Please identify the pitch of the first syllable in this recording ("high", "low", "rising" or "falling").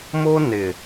high